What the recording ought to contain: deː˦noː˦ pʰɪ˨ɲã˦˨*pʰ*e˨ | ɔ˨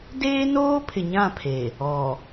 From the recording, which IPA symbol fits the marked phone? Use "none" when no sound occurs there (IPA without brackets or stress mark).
pʰ